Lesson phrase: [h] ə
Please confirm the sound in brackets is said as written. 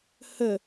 yes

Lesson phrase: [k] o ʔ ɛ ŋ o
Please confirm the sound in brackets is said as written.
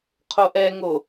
no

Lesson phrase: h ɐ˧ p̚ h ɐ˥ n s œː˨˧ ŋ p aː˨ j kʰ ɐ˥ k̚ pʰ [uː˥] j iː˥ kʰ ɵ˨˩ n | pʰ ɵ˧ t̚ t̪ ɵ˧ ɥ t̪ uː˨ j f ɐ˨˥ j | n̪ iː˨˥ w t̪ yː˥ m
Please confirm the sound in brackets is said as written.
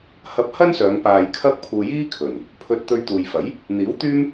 no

